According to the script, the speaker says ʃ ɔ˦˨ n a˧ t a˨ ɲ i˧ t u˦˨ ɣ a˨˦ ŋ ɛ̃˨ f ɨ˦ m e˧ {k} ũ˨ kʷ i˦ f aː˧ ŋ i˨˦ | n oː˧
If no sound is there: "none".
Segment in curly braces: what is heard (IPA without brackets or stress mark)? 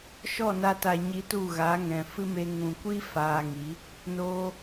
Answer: ŋ